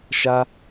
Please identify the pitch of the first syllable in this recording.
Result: high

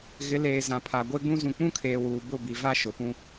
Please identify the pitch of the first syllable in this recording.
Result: rising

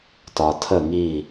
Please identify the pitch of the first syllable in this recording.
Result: low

